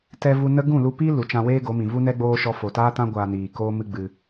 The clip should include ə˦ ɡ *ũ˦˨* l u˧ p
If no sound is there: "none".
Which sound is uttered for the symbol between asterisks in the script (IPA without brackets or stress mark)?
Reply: ũ˦˨